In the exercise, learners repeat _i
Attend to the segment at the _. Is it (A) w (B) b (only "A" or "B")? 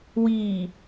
A